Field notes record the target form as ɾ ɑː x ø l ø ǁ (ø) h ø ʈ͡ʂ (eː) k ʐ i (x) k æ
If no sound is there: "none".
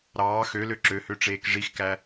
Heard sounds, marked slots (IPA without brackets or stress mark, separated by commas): ø, eː, x